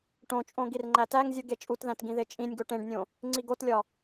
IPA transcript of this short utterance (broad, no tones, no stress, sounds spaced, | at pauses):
ʈ õ t͡ʃʼ õ ɡ i r ŋ͡ǃ æ t æ ŋ zʲ u ɡ e t͡ʃʼ u t ð æ̃ t ɡ ĩ ð e t͡ʃʼ ĩ nʲ ɡ o ʈ ẽ ɖ nʲ õ | ŋ͡ǀ i ɡ o t lʲ ɒ